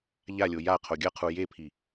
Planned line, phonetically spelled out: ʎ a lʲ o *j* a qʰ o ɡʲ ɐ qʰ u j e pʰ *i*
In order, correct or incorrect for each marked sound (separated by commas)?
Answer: correct, correct